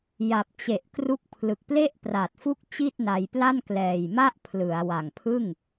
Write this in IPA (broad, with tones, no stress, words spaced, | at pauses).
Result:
ja˨˩p̚t͡ɕe˨˩ʔkru˦˥k̚ pʰlɯ˨˩k̚ple˥˩ʔpra˨˩t̚ fu˥˩k̚t͡ɕi˥˩t̚na˧jpla˥˩n klɛː˨˩jma˥˩ʔpʰlɯ˩˦a̯ wa˨˩ŋpʰɯ˥˩ŋ